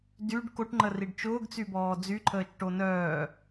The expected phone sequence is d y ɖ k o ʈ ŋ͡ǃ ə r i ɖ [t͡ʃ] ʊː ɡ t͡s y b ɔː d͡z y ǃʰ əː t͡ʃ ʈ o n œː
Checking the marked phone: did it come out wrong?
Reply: no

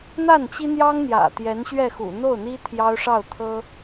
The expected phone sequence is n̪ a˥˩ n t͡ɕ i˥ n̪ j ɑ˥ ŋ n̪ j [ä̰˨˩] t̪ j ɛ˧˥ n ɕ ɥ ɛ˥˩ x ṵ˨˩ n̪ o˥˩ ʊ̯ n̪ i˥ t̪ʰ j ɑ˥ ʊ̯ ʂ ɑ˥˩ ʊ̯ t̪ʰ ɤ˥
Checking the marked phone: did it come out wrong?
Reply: no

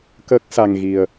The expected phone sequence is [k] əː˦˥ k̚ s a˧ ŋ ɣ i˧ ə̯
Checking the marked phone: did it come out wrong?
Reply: no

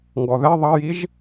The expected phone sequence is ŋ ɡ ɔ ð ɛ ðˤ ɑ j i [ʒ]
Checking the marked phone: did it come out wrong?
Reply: no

